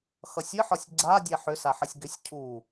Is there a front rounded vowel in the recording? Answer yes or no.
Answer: yes